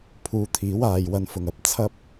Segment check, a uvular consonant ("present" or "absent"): absent